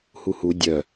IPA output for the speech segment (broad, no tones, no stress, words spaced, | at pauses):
huhu dʲœ